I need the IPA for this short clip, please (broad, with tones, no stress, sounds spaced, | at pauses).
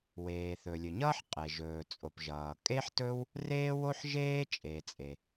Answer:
w eː˩ θ ɵ˩ lʲ ɵ˩ ɲ ʌː˥ ħ qʼ e˩ ʒ ɵː˩ t͡sʼ o˩ p ʒ ʌː˩ kʼ e˥ ħ t ɵ˥ w | r eː˥ w o˥ ħ ʒ eː˥ t͡ʃʼ e˩ t͡sʼ e˩